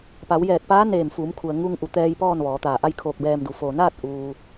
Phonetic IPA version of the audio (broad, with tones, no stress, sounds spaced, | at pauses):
p a˩˧ w j ɛː˧˩ k̚ p aː˧˥ n eː˧˩ m f uː˩˧ m kʰ u˩ ə̯ ŋ u˧ ŋ ʔ u˩˧ t̪ ɛː˧ j p ɔː˥˨ n ʋ ɔː˩˧ t̪ aː˧˩ ʔ a˥˨ j kʰ o˧ k̚ b ɛː˧ m d u˩˧ f o˩ n aː˥˨ t̚ ʔ uː˩